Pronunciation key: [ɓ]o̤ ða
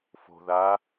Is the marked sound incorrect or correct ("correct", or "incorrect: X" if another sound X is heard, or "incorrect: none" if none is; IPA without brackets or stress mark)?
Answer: incorrect: f